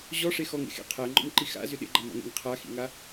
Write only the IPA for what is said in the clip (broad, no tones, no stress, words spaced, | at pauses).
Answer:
ʑɔʂe xɔŋḛxḛ qʰæŋ͡ǃɔ̰mǃi xa̰zʏ ɗḛɡ͡ǃamɔ̰ŋḛŋ qʰaxḭŋa